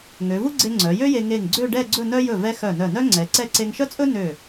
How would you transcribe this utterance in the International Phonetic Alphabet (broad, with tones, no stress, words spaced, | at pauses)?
ŋø˩˧vu˥ɡ͡ǀe˧ ŋ͡ǀœ˩˧jø˥je˧ ŋe˧˩ŋɡ͡ǀø˥˧ɖɛ˥˧ ɡ͡ǀɵ˥˧nœ˥ jɵ˧˩vɛ˧ xœ˧˩nœ˧˩nœ˥ ŋ͡ǀɛ˩˧ǀɛ˥˧ ǀe˧ŋʃœ˥t͡sʼɵ˥ nø˧˩